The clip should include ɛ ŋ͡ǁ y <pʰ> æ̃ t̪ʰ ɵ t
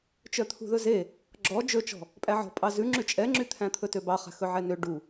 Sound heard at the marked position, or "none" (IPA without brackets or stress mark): t̪ʰ